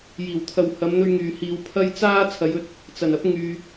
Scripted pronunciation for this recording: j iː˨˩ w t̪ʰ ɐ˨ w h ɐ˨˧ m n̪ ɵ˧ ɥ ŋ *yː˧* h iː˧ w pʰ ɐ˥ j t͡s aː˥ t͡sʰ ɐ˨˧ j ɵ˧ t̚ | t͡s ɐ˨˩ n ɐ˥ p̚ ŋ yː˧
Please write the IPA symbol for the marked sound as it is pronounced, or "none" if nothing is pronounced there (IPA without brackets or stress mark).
yː˨